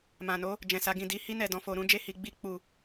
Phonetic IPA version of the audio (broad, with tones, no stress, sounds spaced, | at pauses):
m ã˨ n o˨˦ | d͡ʒ ɛ̃˨ s a˨˦ ɡ ĩ˦˨ d i˧ h i˦ n ɛ˦˨ d ɔ̃˧ f o˧ ɾ ũ˦ d͡ʒ e˦ h i˧ ɡ͡b i˦ k͡p u˦˨